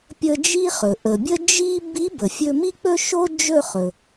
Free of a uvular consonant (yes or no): no